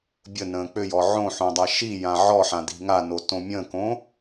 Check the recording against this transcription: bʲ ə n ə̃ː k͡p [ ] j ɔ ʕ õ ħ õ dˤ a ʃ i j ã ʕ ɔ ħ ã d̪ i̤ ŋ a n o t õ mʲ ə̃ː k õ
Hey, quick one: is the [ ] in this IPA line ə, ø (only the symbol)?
ø